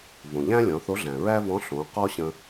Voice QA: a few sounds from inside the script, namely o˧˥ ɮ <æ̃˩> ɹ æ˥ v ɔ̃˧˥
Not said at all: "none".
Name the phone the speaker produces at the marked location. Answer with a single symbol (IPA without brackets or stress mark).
æ̃˩